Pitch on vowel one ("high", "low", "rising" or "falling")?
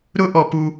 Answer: high